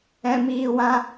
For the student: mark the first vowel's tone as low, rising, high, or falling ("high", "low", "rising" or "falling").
low